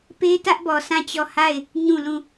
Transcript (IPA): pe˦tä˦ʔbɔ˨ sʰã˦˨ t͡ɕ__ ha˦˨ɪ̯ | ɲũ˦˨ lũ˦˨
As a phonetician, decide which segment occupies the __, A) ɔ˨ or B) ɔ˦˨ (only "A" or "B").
B